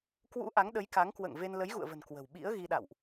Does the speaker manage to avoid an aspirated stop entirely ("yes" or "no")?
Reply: yes